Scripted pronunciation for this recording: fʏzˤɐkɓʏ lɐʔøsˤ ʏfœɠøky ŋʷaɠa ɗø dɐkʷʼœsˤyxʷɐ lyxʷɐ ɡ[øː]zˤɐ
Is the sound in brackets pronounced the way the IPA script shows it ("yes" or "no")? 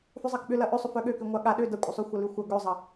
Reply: no